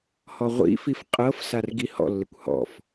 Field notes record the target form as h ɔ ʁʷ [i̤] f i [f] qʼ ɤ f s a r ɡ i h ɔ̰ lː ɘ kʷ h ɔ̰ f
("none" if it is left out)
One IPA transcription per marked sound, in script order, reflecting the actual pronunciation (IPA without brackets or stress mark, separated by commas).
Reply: ḭ, f